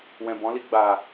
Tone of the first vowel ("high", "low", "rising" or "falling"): low